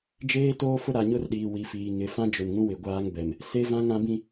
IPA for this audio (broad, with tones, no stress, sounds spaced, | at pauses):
d͡ʒ eː˦ t oː˦ f ʊ˦ ɾ a˨ ɲ ʊ˦ r ɗ iː˨ w i˨ f iː˨ ŋ ɪ˨ f ã˦ d͡ʒ ʊ˨ n ŋ ũ˦ w ɪ˨ ɡʷ aː˦ ŋ b ɛ˨ m | s e˦ v ã˦ ŋ ã˦ b ĩ˦